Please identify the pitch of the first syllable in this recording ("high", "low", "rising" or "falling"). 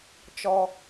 low